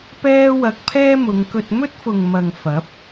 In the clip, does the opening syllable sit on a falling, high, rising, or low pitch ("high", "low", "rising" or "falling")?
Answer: high